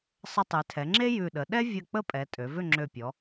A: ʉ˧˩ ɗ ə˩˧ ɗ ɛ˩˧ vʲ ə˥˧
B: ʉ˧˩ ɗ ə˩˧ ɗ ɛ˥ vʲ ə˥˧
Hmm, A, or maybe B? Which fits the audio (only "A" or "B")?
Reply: B